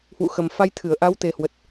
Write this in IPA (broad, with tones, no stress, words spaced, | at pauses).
hwṵ˧˨xə˨˩mfa˧j t̪ʰɨ˧˩ə̯ʔa˨˦wt̪e˨˩hwə˨˩t̚